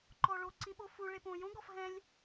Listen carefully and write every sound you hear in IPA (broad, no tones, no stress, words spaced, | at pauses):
ǃɔɭoǀĩ ɓofu ɭepõ jõɡɔf ɦɛ̃lʲ